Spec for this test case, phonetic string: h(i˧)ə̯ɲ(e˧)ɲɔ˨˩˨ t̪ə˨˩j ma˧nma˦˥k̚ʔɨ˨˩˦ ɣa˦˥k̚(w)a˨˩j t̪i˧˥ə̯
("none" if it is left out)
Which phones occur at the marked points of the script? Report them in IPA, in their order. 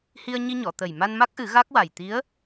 i˧, i˧, w

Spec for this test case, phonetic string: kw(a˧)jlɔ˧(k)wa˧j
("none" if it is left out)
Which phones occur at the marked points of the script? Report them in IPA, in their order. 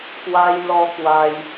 a˧, k

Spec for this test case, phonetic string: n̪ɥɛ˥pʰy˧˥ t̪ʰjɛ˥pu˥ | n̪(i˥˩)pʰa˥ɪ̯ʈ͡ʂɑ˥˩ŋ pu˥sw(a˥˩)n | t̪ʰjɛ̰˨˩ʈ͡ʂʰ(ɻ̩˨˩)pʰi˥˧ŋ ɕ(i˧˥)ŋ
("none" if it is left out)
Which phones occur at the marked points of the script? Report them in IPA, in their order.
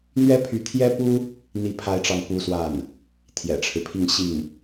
i˥˩, a˥˩, ɻ̩˦, i˥˩

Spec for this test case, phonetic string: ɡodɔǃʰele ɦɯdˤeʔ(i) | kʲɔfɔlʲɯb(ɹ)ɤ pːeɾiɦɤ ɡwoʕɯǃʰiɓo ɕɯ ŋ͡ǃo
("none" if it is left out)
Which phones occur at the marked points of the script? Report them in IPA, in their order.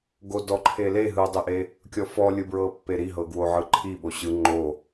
e, ɹ

